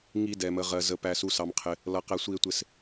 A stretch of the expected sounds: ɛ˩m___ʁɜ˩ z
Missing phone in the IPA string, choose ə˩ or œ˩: ə˩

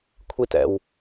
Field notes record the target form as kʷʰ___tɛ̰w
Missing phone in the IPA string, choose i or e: i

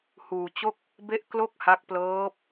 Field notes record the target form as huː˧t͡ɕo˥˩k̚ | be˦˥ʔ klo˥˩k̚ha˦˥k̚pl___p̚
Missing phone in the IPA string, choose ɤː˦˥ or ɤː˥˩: ɤː˦˥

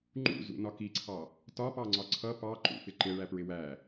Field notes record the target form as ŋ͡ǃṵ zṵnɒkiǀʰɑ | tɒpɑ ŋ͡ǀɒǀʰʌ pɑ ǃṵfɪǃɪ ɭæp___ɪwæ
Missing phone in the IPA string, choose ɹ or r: ɹ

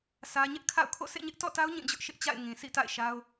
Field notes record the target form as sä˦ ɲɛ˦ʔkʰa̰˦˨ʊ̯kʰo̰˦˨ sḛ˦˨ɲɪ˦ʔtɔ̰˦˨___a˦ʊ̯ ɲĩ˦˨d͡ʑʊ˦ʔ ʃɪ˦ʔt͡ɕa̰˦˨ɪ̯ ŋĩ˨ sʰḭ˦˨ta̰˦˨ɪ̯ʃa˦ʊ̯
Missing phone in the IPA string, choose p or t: t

